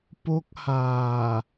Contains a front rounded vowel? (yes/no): no